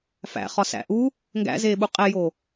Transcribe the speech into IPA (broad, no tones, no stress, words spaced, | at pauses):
fæ̰ χɒsæ̰ʔu | ŋɡæ̰zeːɓu qʼejo